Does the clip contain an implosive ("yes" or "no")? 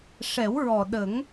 yes